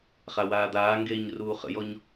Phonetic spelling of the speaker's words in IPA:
χ a w aː d̪ aː ŋ ɡ eː ɲ r uː χ ə̰ j ɔ ɲ

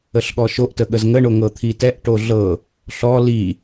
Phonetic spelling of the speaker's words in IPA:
ə ɬ ɠ ɔ ʃ o ʔ t ə ɠ ə z ŋ ə ɳ o ŋ ɤ t̪ʰ i t ɛ ʔ ʈ o ɮ ɤ | ɬ ɔ l i

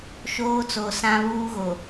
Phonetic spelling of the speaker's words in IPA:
ʃ oː˦ t͡s o˨ s ã˦ β uː˦ ɣ o˨

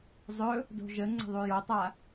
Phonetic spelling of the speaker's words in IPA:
zˤ ɵ | d o̤ ʒ ə ŋ͡ǀ ə̤ ðˤ u j o tˤ a

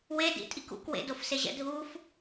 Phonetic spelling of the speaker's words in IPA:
w e d ḭ tʼ i k ṵ k w ḛ d o f s e ʑ ɛ̰ dʱ u f

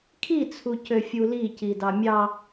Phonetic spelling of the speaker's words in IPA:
kʰ i t͡sʰ u c ø fʲ u l i c i d ɑ mʲ ɑ

